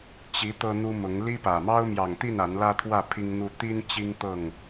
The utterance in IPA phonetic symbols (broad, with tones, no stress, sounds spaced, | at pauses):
t͡ɕ i˨˦ t̪ ɤ˦ n̪ u˦ m ʊ˨˦ ŋ l i˦ p ä˨˩ m ɑ˦ ʊ̯ m j ɑ˨˩ ŋ t̪ i˥˨ n a˨˦ n l ä˦ t̪ʰ w ä˥˨ pʰ i˦ ŋ n̪ u˦ t̪ i˦ n t͡ɕ i˦ ŋ t̪ ɤ˥˨ ŋ